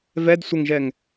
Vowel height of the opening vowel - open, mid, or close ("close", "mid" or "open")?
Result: mid